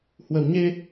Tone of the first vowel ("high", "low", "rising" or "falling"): low